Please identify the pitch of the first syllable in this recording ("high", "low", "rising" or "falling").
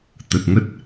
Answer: low